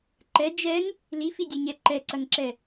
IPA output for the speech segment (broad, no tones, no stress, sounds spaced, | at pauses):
ǃ ɛ d͡ʒ ɛ ŋ | l i f i dʲ e ɲ ɛ ǃ ɛ ǀ ɐ ŋ ǁ ɛ